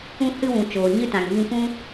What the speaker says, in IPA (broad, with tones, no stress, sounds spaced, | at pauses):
ũ˧ h ɨ˧ w ũ˨ t͡ʃ oː˨ ɲ ɨ˦ t ã˨ ŋ v ĩ˧ kʷ ũ˦